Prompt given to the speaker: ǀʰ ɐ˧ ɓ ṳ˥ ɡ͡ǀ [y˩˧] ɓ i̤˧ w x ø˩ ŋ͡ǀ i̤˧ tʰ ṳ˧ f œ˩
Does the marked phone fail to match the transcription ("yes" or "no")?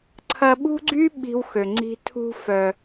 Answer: yes